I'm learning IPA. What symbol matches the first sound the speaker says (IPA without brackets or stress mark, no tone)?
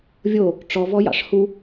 vʲ